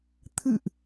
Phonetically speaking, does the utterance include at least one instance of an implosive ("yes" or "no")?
no